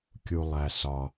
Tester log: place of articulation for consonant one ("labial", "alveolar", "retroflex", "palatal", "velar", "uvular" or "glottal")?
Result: velar